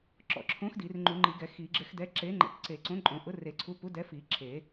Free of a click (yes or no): no